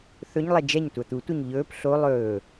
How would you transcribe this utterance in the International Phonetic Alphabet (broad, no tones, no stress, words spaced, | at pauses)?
θɵɲlˠɛ d͡ʒɛɲ tʷat̪utʷeɲ ʎɵːp ɬo lˠɵː